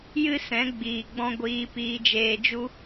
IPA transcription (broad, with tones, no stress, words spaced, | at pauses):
jɨ˦sɛ̃˨˦ ɡ͡biː˨ɡ͡bɔ̃˦ ɡʷiː˧piː˧d͡ʒeː˧d͡ʒu˦